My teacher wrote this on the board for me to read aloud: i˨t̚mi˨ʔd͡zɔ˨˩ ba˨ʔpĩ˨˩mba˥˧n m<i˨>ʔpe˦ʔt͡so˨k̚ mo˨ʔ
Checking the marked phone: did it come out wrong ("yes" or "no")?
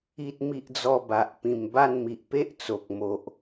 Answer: no